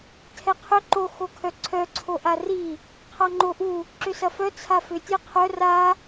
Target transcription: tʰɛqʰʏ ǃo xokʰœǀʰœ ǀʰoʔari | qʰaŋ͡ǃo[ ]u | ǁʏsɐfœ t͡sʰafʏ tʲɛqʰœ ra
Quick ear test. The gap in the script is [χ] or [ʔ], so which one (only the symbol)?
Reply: ʔ